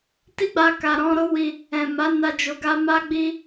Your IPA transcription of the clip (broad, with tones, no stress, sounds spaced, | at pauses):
t i˦ ɡ͡b a˧ k a˨ ɾ ɔ̃˧ ɾ o˦ w i˧ | ɛ̃˨ m a˨˦ n a˧ d͡ʒ o˨ ɡ a˧ m a˦ ɡ͡b i˦